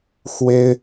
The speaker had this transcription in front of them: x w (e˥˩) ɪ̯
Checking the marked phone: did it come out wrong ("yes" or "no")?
yes